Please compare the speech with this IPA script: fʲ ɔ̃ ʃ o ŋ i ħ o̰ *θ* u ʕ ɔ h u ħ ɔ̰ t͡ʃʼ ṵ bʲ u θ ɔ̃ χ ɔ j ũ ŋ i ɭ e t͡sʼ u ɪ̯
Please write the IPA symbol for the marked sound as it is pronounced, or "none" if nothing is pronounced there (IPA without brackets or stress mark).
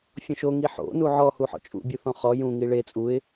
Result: n